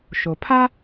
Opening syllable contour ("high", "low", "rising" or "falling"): low